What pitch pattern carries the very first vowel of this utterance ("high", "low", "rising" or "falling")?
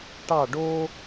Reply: falling